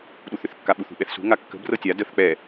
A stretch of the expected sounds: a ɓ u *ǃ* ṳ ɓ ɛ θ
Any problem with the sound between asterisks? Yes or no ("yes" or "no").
yes